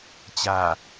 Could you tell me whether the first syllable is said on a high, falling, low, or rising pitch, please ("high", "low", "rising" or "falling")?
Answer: low